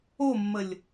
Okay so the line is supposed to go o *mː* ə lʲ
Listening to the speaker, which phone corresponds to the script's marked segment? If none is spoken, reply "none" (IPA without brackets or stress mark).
mː